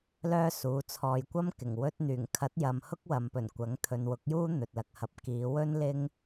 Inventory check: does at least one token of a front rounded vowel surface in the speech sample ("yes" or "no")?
yes